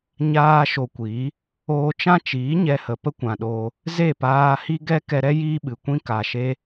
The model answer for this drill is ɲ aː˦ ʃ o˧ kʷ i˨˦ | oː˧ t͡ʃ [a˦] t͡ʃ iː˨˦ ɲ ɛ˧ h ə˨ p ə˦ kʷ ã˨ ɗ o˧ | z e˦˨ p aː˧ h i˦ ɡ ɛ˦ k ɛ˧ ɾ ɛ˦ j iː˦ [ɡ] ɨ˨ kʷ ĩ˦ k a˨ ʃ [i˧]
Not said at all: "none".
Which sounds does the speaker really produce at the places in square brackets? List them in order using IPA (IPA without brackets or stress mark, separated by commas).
ã˦, ɓ, e˧